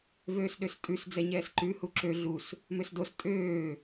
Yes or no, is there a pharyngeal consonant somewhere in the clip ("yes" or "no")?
no